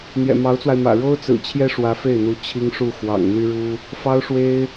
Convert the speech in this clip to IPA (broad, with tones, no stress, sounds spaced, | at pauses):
n̪ j ɛ̰˨˩ m ɑ˧˥ ʊ̯ t͡s w a˧ ɪ̯ m ä̰˨˩ ɻ o˥ ʊ̯ t͡s ɹ̩˨˩ t͡ɕʰ j ɛ˥ ʂ w ä˧˥ f e˥˩ ɪ̯ n̪ u˧˥ t͡ɕʰ i˥ ŋ ʂ u˥˩ x w ɑ̰˨˩ ŋ n̪ y˥ ɻ u˥ | f ɑ˥ ʊ̯ ʂ w e˥ ɪ̯